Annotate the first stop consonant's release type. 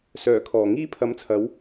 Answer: aspirated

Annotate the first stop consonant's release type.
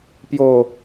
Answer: plain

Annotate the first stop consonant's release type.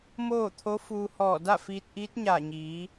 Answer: aspirated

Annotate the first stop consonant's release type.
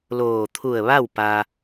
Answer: aspirated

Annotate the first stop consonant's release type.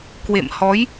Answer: plain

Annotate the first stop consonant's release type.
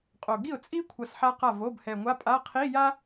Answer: ejective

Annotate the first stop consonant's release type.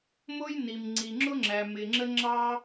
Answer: click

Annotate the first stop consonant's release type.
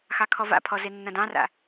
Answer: aspirated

